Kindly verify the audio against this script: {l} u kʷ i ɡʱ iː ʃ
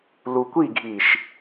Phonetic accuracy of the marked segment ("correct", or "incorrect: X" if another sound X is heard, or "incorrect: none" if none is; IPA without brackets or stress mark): correct